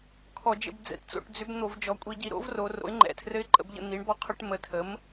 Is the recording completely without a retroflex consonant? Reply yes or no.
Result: no